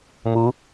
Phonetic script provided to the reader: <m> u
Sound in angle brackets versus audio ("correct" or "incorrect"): correct